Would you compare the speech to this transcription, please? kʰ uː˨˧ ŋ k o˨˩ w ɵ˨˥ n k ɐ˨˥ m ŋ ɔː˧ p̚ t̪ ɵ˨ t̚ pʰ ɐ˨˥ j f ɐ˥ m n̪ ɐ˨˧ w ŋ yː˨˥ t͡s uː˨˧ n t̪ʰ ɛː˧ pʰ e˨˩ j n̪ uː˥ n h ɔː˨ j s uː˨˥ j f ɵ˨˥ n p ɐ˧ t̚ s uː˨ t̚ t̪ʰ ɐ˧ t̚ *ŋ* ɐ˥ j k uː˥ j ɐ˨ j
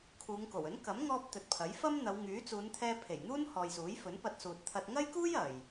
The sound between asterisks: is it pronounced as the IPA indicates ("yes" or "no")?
yes